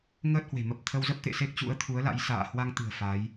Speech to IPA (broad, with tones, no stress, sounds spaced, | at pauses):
ŋ əː˦˥ t̚ h w e̤˨˩ m ə˨˩ p̚ t̪ʰ ə˧ w z ə˦˥ p̚ t̪ ḛ˧˨ s e˦˥ k̚ t͡ɕ ṵ˧˥ ə̯ t̪ʰ u˨˦ ə̯ l a̰˧˥ j s a̰ː˧˨ h w a˧ ŋ t̪ ɨ̤˨˩ ə̯ f a˨˦ j